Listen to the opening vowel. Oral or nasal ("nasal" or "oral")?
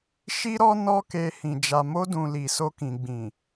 oral